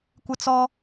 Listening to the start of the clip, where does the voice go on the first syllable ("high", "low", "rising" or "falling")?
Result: high